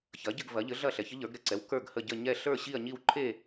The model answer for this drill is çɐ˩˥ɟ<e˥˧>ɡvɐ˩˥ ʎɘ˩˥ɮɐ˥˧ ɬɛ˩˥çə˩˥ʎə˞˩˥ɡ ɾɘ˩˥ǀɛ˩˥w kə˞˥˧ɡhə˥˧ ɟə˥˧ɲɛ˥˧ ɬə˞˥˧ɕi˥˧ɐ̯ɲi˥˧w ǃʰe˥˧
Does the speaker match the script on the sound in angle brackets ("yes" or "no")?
no